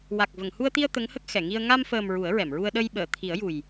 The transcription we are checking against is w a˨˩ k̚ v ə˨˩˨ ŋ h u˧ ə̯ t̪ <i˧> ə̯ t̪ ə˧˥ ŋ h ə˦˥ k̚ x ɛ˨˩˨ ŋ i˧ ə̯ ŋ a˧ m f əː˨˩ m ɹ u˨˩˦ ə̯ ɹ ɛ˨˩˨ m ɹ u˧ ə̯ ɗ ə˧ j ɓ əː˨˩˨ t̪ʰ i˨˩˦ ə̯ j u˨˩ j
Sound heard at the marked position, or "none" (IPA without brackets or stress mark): i˧